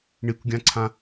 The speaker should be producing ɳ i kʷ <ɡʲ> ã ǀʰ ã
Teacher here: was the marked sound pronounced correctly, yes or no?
yes